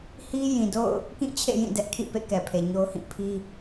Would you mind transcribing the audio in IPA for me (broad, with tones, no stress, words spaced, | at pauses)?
hi˦jĩ˨do̰˦˨ʊ̯ | kĩ˦˨t͡ɕʰḛ˦˨ jĩ˦˨dɛ˦ʔkʰḭ˦˨pḛ˦˨ kɛ˨pʰe˨ɲo˦ʊ̯hĩ˦˨ pʰi˦